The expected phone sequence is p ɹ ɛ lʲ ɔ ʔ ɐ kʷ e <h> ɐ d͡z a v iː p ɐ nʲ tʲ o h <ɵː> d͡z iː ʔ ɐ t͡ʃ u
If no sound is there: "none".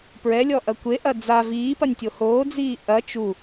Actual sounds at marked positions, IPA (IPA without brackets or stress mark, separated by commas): ʔ, oː